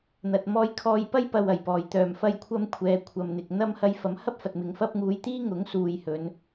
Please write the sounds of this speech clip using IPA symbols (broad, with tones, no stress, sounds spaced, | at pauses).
n̪ ɐ˨ t̚ m ɔː˧ j kʰ ɔː˧ j p ɐ˥ j p ɐ˨ w ɐ˨˩ j p ɔː˨˩ j t̪ œː˨˩ m f ɐ˧ j kʷʰ ɐ˧ m kʷʰ ɛː˨˧ kʷʰ ɐ˨ m n̪ ɪ˨ k̚ n̪ ɐ˥ m h ɐ˧ j f ɐ˨˥ m h ɐ˥ p̚ f ɐ˨ t̚ m ɪ˨˧ ŋ f ɐ˥ p̚ ŋ uː˨ j t̪ iː˥ ŋ ʊ˨˥ ŋ s uː˨ j h ɵ˨˧ n